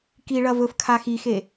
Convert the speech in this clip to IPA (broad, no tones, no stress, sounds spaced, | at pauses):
k i ɭ ɐ v ɵ f kʰ a x i x e